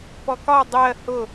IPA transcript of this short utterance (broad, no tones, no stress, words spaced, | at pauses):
pɔkɒ dˤɜ hʊ